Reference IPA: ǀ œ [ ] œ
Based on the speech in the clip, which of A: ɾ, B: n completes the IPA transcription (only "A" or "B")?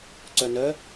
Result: B